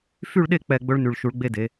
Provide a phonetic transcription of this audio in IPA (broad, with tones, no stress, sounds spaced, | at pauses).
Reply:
f y˥˧ ɭ ɗ e˥˧ k͡p ɛ˥˧ ɡ͡b ɵ˥ ɭ n y˧˩ ɭ ʃ u˩˧ ɭ ɡ͡b e˧ d e˩˧